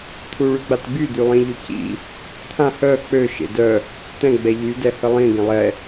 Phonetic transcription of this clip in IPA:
t̪ʰ u ɭ y ɡ͡b a t ɡ͡b y d̪ y lˠ ĩ ʎ ø c ḭ | t̪ʰ ã h œ k͡p ø ʃ ḛ d œ | t̪ ɛ̃ ɡ͡b ɛ ʎ y d ɛ h ə lˠ ĩ ɡ ẽ lˠ ɛ

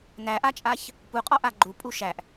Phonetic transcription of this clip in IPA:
n æ ʔ a t͡ʃʼ a ç | p u qʼ ɔ ʔ a ɡ͡ǃ u pʼ u ʃ æ ʔ

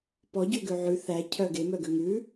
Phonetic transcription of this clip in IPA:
p ɔ ɟ ø ɡ ø ʕ ʉ θ æ cʰ œ ɡ e m œ ɡ ø ŋ ʉ

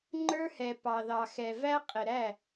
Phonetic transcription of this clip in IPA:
ŋ͡ǃ ə˞˦ h ɛ˨ p ɑ˨ ð ɑ˨ x ɛ˨ v æ˦ qʼ ɪ˨ ɾ æ˦˨

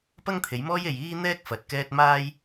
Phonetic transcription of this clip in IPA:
p ɐ˥ ŋ t̪ʰ e˨˥ j m ɔː˥ j e˧ j iː˥ n̪ ɛː˥ k̚ f ɐ˨˥ t̚ k ɛː˥ t̚ m aː˥ j

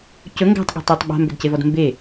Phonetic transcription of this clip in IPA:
c ɵ ŋ ɡ æ̤ tˤ ɠ ɔ̤ tˤ e tˤ ɓ a̤ m b ɵ d c e v ɔ d m b e

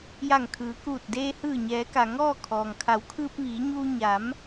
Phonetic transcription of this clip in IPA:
j a˧˩ ŋ kʰ ɯː˩˧ k uː˧˩ t̚ d eː˧ h ɯː˧˩ ɲ ɛː˩˧ k a˩ ŋ ɔː˥˨ kʰ ɔː˩ ŋ kʰ a˩˧ w kʰ ɯː˧ p̚ ʋ iː˩˧ ɲ uː˧ ɲ a˩˧ m

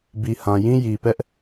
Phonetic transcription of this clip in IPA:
b i˨ h ã˨ j ĩ˦ j i˨ p ɛ˦ ʔ

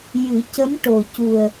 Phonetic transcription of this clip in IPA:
j ɨ˨˩˦ c ə˧˥ m ʈ o˨˩ c u˨˩ ə̯

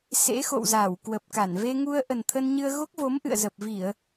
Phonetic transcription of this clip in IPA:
s ḛ˧˥ x o̰˧˨ w z aː˧˩ w k w ə˨˩ p̚ k a˧˩ n v e˧ ŋ u˧ ə̯ ʔ ə˨˩ n t̪ʰ ə˧ n ɲ ɨ˧ ə̯ ɣ o˦˥ k̚ v o˨˦ m ʔ ɨ̰˧˨ ə̯ z ə˨˩ p̚ v i˧˩˨ ə̯

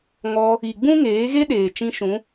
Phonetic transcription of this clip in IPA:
ŋ ɔ˧ | i˨ ɡ͡b ũ˦ ŋ eː˨˦ ɣ e˦ ɗ eː˨ t͡ʃ ĩ˧ ʃ ũ˨˦

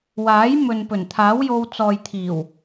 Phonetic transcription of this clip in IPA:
w aː˨˥ j m ɵ˨ n p ɵ˨˩ n t̪ʰ aː˨˥ w j o˧ w t͡s ɔː˨ j t̪ʰ iː˨˩ w

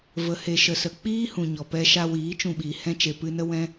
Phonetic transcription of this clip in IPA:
v ə˨ h e˨ ʃ ə˨ s ə˨ k͡p iː˦ h ũ˨ ɲ ɔ˨ p ɛ˧ ʃ a˧ w iː˨˦ t͡ʃ ũ˧ ɓ iː˨ h ɛ̃˦ t͡ʃ e˨ p ɨ˧ n ə˦ w ɛ̃˦

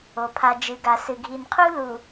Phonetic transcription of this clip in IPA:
o˨ pʰ a˨ d͡ʒ ɨ˨ ɡ a˨ s ɨ˨ ɡʱ i˨ n qʰ u˦ l u˨

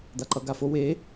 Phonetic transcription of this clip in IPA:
d̪ a ǃ ʌ ɡ a f o w e

